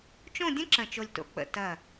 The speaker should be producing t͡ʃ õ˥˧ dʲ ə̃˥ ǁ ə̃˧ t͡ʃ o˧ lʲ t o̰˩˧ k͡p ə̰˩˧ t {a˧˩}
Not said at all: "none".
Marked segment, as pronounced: ɐ˧˩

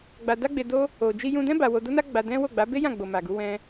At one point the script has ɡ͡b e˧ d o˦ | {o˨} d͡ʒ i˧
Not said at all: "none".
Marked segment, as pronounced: o˨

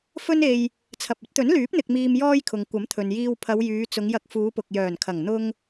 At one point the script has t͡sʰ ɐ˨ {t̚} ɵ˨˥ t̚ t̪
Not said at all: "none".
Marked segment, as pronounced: p̚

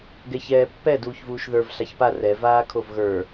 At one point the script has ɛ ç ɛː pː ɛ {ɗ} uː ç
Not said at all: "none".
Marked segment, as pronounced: d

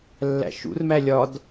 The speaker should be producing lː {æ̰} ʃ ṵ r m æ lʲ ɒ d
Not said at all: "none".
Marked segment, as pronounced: æ̰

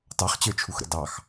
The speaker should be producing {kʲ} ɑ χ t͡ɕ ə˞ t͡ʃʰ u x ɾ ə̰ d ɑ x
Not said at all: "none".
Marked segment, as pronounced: t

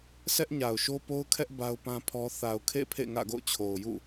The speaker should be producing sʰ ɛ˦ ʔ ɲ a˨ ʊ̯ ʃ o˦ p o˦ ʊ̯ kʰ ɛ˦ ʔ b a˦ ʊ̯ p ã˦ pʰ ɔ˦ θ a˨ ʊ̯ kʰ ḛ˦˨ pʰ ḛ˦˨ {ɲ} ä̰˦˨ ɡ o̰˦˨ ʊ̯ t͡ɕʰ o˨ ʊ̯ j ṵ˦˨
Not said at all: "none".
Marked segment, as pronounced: ŋ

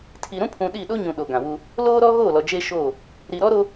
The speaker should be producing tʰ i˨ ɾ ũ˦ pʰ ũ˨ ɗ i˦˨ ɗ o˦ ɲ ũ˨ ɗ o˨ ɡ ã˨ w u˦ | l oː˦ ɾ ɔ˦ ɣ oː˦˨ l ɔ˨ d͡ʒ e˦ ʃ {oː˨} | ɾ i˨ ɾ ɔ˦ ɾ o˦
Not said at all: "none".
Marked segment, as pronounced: oː˦˨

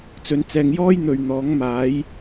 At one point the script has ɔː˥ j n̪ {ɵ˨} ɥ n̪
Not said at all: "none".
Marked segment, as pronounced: ɵ˨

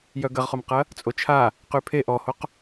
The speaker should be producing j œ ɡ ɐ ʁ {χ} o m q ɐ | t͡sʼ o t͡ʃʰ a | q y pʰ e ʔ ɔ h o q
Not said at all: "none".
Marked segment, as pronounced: χ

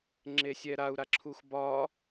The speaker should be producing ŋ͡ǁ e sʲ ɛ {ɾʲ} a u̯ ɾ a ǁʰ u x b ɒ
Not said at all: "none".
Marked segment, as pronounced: ɾ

